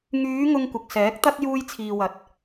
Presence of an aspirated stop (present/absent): present